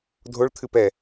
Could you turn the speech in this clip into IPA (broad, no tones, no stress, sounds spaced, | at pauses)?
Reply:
dʱ o ɭ t̪ʰ ɨ p ɛ